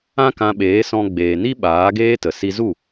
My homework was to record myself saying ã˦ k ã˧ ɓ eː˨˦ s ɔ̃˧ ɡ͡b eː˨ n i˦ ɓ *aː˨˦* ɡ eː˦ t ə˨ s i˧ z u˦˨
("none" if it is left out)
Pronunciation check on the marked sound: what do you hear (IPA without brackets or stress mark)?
aː˨˦